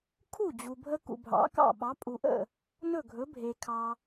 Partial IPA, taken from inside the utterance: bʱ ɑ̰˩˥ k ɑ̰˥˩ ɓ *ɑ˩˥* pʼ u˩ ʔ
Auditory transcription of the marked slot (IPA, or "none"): ɑ˩˥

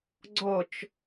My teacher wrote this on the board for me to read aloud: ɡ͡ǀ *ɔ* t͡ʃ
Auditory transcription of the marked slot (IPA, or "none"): ɔ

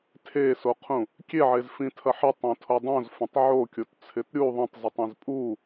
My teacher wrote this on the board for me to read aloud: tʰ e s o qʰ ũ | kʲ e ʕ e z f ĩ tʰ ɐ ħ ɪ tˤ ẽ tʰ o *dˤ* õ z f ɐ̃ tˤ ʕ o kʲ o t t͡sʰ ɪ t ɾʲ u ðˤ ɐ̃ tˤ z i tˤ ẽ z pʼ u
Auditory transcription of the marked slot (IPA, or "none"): dˤ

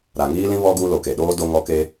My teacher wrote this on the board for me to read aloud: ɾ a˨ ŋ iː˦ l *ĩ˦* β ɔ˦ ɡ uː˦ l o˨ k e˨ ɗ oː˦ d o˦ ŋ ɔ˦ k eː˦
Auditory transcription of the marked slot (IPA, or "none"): ĩ˦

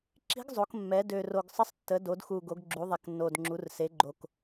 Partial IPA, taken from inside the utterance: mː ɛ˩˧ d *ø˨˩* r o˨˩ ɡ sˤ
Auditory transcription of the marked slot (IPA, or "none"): ø˨˩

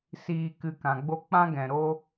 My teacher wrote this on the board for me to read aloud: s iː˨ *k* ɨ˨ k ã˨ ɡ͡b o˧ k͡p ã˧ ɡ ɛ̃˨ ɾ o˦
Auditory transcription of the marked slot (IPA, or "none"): k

